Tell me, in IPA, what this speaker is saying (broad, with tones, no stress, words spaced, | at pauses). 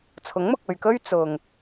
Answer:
t͡sʰʊ˨˥ŋmʊ˨k̚ɵ˨ɥkɵ˥ɥ t͡sʊ˨ŋ